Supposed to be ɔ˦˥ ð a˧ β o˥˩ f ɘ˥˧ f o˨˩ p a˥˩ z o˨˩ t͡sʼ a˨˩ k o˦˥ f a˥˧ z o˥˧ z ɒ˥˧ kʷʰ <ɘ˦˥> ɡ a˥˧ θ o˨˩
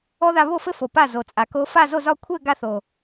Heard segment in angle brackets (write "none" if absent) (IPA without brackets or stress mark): ɘ˥˧